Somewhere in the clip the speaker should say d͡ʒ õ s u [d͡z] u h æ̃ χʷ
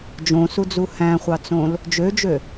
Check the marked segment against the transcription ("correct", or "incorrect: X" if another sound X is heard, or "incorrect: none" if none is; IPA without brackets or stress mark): correct